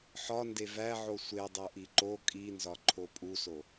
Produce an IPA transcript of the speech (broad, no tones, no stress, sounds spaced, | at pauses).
ħ ɒ n d e v æ ʕ o sʷ e dˤ o ʔ i ǃ o kʼ i n z ɒ ǃʰ o pʼ u s o